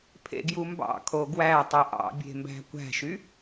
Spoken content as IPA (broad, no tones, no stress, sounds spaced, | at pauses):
pʰ ḛ ɡ j u m b ɑ̰ kʰ o ɡ w æ tˤ ɯ ʔ ɑ̰ bʲ e̤ m b æ̤ kʷ æ̤ ʃ y